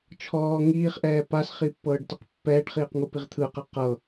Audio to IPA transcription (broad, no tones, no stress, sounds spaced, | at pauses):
t͡ʃʰ ɔː ŋ iː χ ʔ ɛː p a s χ i pː ɤː ɖ t ɯ q pː ɛː ɖ χ iː q ŋ u p i ʁ t̪ʰ ɯ q ɛ q ɤ